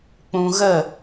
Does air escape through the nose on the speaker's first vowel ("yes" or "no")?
yes